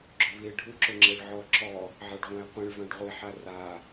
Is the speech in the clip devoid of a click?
no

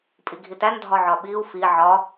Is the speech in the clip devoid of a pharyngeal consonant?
no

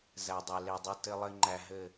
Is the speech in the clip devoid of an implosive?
yes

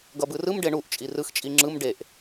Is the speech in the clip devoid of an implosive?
yes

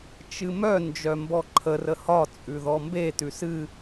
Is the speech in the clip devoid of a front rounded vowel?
no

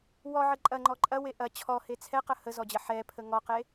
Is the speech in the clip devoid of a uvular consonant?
no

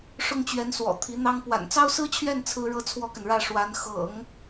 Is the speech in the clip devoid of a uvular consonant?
yes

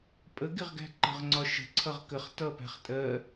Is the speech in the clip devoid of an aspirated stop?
no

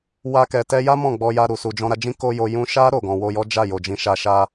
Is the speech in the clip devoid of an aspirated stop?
yes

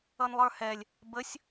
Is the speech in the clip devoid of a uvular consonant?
yes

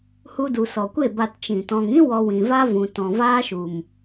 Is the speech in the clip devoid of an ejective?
yes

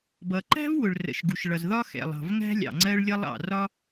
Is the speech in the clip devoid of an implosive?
yes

